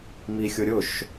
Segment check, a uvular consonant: absent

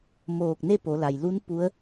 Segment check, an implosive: absent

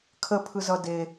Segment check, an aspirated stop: present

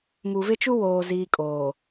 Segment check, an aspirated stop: absent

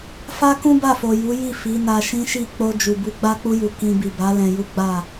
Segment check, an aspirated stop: absent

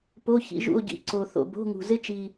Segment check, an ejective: absent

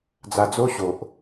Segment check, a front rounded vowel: absent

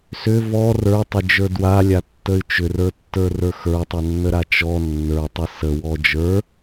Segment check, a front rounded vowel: present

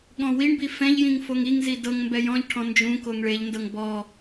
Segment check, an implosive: present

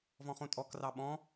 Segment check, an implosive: present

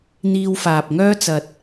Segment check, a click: absent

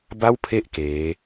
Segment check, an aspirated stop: present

